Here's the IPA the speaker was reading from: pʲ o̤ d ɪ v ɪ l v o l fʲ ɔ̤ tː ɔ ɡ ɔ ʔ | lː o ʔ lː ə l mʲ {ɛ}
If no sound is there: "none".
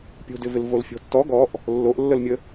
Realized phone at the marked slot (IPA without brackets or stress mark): ə